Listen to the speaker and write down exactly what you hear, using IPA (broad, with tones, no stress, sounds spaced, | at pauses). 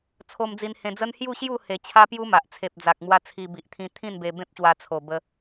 t͡sʰ o˧ m d͡z i˧ n h ẽ˧ d͡z ə˦ n h j u˥˧ ɕ j u˥˧ h e˨˩ t͡ɕʰ a˦ p j u˦ m a˨ ʔ t͡sʰ e˨ p̚ d͡z a˨ k̚ m w a˧ t͡sʰ i˧ b i˨ ʔ t̪ʰ ĩ˧ t̪ʰ ĩ˥˧ n b e˧ b ẽ˦ p̚ ɕ w a˧ t͡sʰ o˨˩ b ə˧